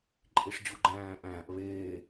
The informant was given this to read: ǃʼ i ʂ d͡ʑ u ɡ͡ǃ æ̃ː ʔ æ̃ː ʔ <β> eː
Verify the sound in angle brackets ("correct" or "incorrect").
correct